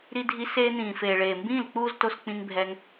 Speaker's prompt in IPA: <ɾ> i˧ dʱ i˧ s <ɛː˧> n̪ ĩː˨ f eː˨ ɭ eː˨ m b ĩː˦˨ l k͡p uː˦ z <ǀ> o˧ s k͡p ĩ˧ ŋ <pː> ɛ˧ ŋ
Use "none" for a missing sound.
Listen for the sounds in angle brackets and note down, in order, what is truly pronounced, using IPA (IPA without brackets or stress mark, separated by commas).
ɾ, eː˧, t, bʱ